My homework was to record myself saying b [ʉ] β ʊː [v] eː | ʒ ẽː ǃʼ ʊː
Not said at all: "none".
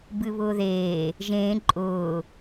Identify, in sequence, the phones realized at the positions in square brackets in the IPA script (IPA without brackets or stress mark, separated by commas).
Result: ɨ, ð